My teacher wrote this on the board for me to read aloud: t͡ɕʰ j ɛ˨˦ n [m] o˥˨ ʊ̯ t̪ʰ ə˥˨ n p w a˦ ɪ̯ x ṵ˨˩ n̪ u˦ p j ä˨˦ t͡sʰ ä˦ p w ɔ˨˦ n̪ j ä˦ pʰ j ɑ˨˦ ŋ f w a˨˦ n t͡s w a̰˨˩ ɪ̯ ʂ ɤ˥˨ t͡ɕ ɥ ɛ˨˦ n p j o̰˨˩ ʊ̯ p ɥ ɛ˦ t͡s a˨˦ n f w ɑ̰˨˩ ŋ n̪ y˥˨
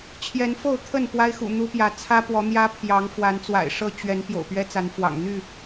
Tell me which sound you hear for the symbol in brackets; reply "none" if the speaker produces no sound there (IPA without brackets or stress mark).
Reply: f